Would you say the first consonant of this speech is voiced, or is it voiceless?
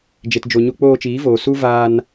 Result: voiced